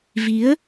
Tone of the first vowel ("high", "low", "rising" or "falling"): rising